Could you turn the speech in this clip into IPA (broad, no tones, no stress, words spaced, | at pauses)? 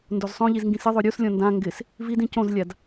ndozsˤõʎiz ŋɡĩsɪðˤo ɾʲuslʲɔ̃ ndã ŋɡɪs | vidĩ cõzlʲad